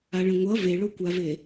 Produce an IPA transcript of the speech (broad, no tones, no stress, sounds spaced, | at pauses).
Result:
a ɭ ɛ̃ ŋʷ ʌ v e ɭ o kʷ a v e